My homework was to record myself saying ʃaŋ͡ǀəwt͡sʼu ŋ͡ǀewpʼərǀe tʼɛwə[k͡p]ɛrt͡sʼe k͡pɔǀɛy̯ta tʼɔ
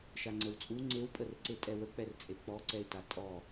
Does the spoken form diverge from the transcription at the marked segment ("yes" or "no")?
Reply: no